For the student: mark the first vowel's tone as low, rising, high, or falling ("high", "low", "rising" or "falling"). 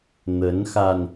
rising